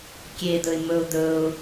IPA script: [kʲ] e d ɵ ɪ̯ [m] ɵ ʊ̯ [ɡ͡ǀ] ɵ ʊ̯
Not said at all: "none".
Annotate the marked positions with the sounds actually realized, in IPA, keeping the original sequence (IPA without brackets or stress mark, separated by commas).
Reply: kʲ, m, d